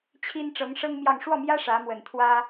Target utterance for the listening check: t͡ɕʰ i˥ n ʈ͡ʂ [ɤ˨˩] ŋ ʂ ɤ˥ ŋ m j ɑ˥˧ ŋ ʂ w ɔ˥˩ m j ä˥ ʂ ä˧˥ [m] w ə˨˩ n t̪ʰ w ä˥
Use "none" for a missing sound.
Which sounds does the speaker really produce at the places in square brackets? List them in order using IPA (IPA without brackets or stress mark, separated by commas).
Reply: ɤ˧˥, m